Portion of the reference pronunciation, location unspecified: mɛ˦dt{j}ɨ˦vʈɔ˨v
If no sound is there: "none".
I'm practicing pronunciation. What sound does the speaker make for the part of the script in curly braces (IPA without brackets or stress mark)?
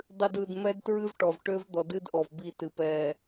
ɹ